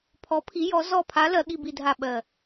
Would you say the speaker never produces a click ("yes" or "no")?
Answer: yes